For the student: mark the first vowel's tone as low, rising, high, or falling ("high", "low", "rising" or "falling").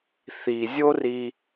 low